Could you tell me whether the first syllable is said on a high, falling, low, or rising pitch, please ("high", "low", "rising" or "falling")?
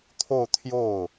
falling